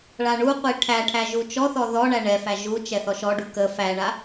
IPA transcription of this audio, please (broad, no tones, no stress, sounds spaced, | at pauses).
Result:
ɭ a ɳ u qʷ i ʈʰ æ ʈʰ æ ʒ u t͡ʃ ɔ θ ɔ ð ɔ ɳ æ ɳ ɛ f æ ʒ u t͡ʃ ɛ θ ɔ ʃ ɔ ɖ u k ə f æ ɳ a